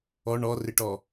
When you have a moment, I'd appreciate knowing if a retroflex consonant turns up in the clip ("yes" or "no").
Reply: yes